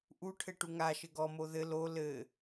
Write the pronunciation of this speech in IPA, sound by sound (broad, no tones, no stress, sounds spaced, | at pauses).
ʔ u ʈʰ ɘ ʈ u ŋ a ʃ ɘ ɡ ɔ m o ð ɘ l o l ɘ